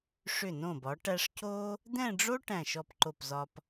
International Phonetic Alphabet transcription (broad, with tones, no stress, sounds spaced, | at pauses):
ʂ ʏ˧˩ n õ˧˩ b ɒ˩˧ ʈ æ˧ ʂ c o˥ | d̪ ɛ̃˥˧ ɖ͡ʐ o˥ ʈ æ̃˧˩ ʃ ɔ˧˩ p ǃ o˧˩ p z ɒ˧ p